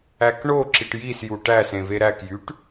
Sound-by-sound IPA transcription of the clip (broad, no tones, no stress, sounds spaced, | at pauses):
æ k ɳ o ǁ i ʈ j i s j u ʈ æ s ẽ v e ɾ æ k j y ʈ